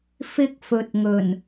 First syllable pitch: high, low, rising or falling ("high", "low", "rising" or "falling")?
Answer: high